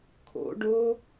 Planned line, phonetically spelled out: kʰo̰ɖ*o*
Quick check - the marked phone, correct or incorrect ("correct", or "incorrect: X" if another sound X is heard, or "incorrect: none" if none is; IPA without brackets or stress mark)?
correct